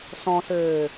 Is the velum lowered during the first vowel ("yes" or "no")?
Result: yes